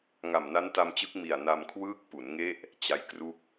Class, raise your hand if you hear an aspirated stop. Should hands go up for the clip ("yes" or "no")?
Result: yes